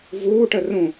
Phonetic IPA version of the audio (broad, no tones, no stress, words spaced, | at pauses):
vuːʈə rũ